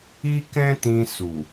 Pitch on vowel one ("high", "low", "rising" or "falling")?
high